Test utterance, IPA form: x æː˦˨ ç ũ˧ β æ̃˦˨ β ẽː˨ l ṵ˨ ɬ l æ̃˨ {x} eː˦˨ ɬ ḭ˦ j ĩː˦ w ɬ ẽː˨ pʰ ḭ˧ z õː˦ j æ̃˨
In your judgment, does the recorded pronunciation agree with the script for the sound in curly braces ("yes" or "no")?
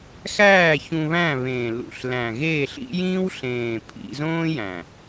no